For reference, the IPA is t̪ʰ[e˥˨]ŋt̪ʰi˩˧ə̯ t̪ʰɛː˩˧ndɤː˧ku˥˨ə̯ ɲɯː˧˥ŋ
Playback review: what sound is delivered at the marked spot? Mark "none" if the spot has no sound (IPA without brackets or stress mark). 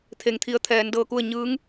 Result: e˩